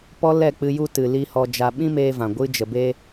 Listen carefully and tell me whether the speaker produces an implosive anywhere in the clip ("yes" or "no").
yes